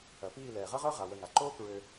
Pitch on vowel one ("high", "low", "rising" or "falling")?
low